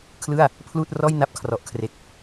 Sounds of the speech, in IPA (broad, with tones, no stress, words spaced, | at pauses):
kʰlɯ˥˩a̯ | pʰluː˥˩t̚ rɔː˥˩jna˦˥p̚ kʰrɔ˨˩ʔkʰre˨˩k̚